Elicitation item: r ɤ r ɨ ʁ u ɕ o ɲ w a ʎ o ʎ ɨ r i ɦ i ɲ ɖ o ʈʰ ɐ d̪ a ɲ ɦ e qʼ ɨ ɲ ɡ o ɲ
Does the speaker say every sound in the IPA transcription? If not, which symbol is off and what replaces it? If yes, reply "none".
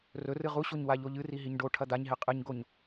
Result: ɤ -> ɵ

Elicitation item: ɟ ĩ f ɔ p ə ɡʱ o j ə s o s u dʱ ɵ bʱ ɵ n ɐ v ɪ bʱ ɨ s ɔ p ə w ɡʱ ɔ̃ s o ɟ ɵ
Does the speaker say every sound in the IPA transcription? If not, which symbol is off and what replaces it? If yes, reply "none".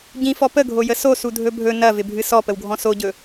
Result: none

